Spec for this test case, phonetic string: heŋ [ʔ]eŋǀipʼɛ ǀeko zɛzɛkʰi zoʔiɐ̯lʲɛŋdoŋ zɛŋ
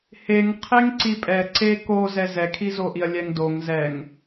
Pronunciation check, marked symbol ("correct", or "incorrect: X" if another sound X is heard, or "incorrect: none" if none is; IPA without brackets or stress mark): incorrect: qʰ